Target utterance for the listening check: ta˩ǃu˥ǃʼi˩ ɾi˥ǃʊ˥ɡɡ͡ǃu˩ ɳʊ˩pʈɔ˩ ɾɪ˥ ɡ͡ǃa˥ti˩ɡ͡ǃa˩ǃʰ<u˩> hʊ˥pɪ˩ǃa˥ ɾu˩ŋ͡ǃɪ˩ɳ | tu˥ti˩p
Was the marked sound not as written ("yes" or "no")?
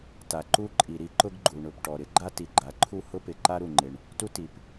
yes